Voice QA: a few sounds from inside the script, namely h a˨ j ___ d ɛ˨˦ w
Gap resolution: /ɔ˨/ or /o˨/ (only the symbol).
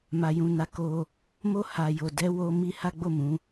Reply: o˨